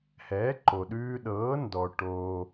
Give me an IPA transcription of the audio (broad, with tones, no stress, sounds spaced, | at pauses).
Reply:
h ɛː˩˥ ǃ o˩ ɗ ʉː˧ ɗ ɤː˩˥ n d ɔ˩ ʈ oː˩